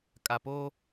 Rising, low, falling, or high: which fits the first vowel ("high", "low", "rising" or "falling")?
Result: low